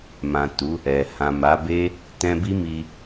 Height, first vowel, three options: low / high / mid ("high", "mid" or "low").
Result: low